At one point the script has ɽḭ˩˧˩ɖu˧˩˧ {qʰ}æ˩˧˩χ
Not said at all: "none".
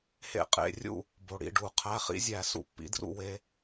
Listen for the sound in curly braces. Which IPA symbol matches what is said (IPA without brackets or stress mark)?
qʰ